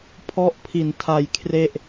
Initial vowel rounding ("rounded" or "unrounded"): rounded